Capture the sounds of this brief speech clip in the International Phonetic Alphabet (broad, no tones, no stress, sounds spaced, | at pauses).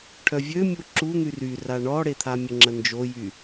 ʈʰ œ vʲ ø mʲ u ǁ u n̪ y r y r a ɳ ɔ ɽ e t̪ʰ a mʲ ə ŋ͡ǁ ə n d͡ʒ o j y